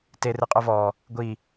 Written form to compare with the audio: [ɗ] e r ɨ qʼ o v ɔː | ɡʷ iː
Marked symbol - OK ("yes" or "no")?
no